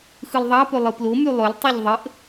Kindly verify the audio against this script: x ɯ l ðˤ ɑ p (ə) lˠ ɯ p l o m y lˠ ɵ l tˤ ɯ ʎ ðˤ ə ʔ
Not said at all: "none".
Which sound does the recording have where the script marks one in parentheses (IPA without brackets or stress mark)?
ɵ